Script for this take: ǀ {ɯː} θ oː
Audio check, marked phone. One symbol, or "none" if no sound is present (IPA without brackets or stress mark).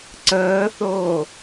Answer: əː